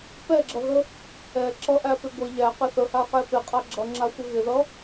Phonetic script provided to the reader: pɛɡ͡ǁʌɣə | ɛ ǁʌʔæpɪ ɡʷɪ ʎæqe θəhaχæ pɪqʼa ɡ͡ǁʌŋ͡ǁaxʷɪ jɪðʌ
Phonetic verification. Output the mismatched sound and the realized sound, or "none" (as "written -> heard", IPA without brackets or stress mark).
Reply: j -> ɣ